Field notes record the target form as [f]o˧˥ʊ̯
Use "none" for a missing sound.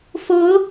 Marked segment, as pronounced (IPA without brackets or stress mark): f